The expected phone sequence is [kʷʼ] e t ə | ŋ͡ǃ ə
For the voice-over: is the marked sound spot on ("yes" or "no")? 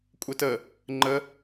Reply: yes